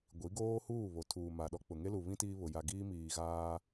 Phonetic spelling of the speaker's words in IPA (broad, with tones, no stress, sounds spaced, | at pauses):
ɡʷ i˨˦ ɡ oː˦ h uː˦˨ β o˨ tʰ uː˨ m a˨ ɗ ɔ˦ k͡p ʊ˨ ŋ e˦ l u˨ β ĩ˦ t iː˦ β ʊ˨ j a˨ ɡ iː˦ m iː˨ ɣ aː˦